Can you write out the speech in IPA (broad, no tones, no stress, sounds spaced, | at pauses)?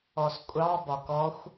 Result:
ɔ s kʷʼ ɑ b ɒ k ɔ xʷ